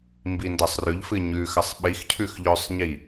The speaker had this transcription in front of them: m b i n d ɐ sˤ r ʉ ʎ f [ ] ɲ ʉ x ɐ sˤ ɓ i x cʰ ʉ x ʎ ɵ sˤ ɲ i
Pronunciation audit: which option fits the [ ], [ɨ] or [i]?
ɨ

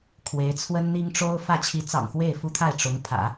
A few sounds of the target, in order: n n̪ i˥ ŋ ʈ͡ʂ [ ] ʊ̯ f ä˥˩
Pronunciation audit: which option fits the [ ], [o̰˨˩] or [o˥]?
o˥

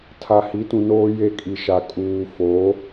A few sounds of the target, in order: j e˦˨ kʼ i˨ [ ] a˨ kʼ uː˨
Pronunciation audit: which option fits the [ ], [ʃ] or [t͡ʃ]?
ʃ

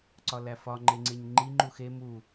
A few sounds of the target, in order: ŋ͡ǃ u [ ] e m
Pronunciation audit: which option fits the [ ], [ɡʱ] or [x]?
x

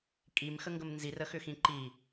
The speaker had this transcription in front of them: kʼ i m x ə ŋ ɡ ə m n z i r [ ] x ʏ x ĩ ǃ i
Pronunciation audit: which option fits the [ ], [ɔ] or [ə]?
ə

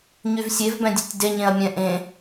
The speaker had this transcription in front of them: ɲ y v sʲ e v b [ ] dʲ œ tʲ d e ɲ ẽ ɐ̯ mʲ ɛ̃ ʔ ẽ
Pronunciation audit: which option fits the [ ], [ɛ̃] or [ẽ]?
ɛ̃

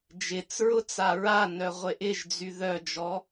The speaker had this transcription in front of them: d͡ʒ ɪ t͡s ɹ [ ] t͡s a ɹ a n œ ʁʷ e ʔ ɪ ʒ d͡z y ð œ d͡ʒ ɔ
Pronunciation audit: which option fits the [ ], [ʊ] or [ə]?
ʊ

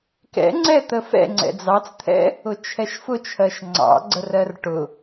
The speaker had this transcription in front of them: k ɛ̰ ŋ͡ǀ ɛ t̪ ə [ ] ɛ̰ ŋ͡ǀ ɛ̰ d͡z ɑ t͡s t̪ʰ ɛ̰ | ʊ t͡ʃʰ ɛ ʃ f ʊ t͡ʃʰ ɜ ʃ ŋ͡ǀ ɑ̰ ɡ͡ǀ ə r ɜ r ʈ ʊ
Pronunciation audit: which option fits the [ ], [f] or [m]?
f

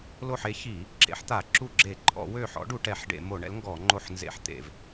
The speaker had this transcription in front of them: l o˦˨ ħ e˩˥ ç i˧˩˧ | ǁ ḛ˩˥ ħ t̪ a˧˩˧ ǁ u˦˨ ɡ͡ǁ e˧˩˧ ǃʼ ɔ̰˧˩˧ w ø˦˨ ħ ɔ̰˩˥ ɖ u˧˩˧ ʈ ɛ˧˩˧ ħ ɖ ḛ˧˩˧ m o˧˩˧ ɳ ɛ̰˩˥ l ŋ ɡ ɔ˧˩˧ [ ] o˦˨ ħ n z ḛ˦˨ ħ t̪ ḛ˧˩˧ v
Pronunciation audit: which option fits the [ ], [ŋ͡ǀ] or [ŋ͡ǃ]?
ŋ͡ǃ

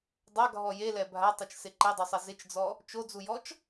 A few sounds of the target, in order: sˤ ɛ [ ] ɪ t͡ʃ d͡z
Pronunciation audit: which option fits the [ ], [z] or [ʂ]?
z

